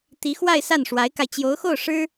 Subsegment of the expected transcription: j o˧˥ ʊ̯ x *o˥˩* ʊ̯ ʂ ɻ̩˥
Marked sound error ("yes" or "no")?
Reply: no